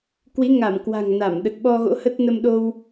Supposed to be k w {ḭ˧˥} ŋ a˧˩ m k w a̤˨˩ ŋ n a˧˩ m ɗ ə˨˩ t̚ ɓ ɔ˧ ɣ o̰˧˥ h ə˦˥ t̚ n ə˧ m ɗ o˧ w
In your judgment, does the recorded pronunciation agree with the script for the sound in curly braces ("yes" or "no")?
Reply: no